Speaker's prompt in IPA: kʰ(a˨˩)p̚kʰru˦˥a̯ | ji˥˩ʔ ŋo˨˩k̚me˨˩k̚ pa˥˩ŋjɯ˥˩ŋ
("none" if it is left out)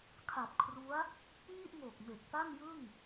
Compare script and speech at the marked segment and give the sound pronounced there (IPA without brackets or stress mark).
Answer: a˨˩